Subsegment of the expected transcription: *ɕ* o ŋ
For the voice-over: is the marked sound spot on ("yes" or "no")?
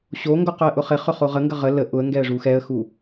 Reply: yes